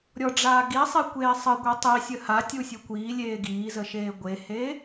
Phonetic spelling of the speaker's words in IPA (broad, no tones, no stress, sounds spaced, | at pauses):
ɾʲ ɔ ɖ͡ʐ aː ɡ i sˤ e kʷ eː sˤ ə ɡʷ e tˤ i sʲ ə h a tʲ u sʲ u kʷ iː lʲ eː ɡ iː z ə ʃ eː ɡʷ e h e